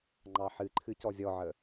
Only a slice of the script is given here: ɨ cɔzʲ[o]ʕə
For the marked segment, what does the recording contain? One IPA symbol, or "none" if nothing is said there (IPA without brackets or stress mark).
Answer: ɔ